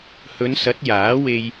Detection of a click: absent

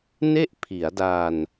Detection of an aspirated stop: present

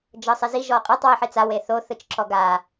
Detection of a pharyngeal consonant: present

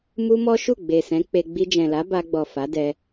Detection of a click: absent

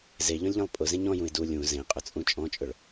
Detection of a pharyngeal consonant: absent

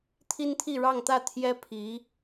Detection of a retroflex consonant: present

